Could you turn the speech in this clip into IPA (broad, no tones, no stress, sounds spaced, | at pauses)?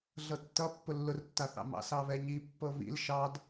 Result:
ɮ ɤ tː ʌ pː ʊ lː ʊ r tː a θ ɑ̰ m ɑ̰ s ɑ β ɛ ɲ i pː ɤ β ḭ l ʃ ɑ d